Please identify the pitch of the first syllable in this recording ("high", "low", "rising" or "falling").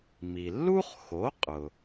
low